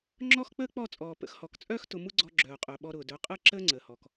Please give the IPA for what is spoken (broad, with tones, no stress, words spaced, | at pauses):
ŋ͡ǁɔ˦xk͡pəː˦k͡pɔ˦˨t͡sʼɔː˨ pə̰˧xhɔ˨kt͡sʼœː˦x tʊ˧mu˦ɡ͡ǀɔ˧ ɡ͡ǁœː˨qʼœ˨ ɓɔ˧ɾʊː˨dœ˨˦ qʼəː˦ǁəː˦ŋ͡ǀəː˨hɔ˨k